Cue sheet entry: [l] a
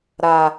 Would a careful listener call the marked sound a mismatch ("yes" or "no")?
yes